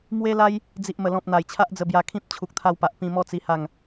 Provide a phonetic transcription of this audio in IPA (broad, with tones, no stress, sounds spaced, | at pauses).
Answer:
m w e˦ l a˦ j | d͡z i˨ ʔ m ə˨˩ l ɔ̃˨ p̚ n̪ a˨˩ j t͡ɕʰ a˦ ʔ d͡z ə˧ b j a˧ kʰ ĩ˦ p̚ t͡ɕʰ u˨ k̚ t̪ʰ a˧ w p a˨ ʔ p ĩ˧ m ɔ˦ t͡s i˧ h a˥˧ ŋ